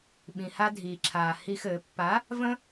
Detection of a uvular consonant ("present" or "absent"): absent